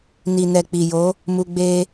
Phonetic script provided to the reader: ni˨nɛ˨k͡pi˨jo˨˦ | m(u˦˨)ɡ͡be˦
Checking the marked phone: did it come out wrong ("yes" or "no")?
yes